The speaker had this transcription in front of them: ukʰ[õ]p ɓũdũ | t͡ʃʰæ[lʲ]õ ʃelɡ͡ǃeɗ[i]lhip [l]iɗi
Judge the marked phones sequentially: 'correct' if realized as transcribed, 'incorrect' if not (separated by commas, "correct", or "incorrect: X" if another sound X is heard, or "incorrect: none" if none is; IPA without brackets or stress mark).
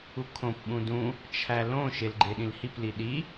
correct, incorrect: l, incorrect: ĩ, correct